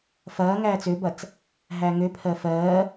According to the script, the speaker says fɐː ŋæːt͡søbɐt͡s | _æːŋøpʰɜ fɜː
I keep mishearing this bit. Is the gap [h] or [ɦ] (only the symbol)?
ɦ